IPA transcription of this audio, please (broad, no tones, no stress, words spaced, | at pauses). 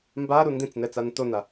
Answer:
mbaɾu ndĩt͡snɛ t͡santona